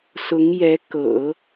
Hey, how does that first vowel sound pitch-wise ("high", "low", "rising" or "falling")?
rising